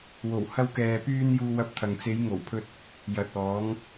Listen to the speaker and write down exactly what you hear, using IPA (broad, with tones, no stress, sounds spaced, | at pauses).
w o˨˩ w h ɐ˧ w k ɛː˨ p yː˧ n j uː˧ w ɐ˧ p̚ t̪ʰ ɐ˨ ŋ t͡s e˨˧ j ŋ o˨˩ w pʰ ɵ˧ t̚ | j ɐ˨ t̚ ɔː˨˧ ŋ